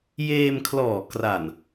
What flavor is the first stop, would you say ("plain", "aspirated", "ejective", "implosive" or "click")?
aspirated